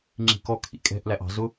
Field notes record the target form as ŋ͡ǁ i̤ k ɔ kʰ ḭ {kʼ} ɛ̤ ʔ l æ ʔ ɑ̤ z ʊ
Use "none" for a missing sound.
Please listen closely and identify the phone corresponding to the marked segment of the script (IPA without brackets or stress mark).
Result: kʼ